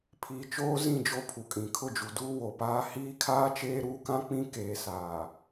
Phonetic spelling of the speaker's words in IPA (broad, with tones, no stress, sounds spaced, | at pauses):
pʰ iː˨ t͡ʃ oː˦ z ĩ˦˨ d͡ʒ o˦ pʰ u˨ kʼ ĩ˨ kʰ ʊ˦˨ d͡ʒ u˨ d uː˦ w o˨ p aː˦ h iː˦ kʰ aː˦ t͡ʃ eː˦ ɾ uː˦ k ã˦ k͡p ĩ˦ k eː˨ s aː˨